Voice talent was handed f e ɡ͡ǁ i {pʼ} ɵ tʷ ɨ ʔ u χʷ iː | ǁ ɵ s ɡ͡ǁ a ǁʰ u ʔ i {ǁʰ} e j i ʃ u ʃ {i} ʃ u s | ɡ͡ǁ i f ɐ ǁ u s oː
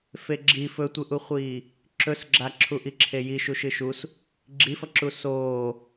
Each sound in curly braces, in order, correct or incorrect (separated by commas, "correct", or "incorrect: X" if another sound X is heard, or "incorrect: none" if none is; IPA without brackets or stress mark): incorrect: f, correct, incorrect: ɨ